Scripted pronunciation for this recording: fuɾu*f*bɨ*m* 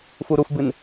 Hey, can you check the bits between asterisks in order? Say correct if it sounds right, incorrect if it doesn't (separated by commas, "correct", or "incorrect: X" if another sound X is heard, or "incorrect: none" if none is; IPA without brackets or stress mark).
correct, incorrect: n